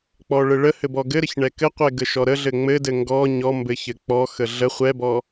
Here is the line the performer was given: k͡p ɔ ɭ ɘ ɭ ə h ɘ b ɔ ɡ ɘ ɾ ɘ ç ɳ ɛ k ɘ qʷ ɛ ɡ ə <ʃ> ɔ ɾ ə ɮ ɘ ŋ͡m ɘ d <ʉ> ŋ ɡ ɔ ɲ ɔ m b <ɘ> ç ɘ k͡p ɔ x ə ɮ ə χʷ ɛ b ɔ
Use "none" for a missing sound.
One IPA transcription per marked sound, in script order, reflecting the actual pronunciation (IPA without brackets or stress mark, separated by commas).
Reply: ʃ, ɘ, ɘ